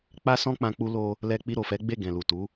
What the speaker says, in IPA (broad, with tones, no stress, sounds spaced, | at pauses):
k͡p a˦ s ɔ̃˦ k͡p ã˧ k͡p u˧ l o˧ | l ɛ˧ k͡p i˧ ɾ o˨ f ɛ˨˦ ɡ͡b e˦˨ ɡ ɛ̃˨ l u˨ t u˨˦